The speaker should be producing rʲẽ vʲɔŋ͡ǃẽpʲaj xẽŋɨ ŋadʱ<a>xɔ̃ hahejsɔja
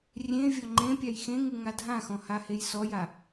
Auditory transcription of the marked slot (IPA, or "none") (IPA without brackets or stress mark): ã